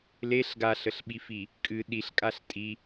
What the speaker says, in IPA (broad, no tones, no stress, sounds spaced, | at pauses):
l e ɬ ɡ a ɬ ə ɬ ɓ i f i | kʼ ɨ ɗ i ɬ kʼ a ɬ tʼ i